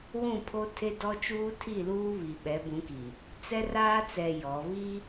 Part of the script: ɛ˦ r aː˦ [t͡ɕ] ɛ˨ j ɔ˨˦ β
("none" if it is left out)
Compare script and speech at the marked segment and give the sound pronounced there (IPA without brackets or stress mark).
t͡s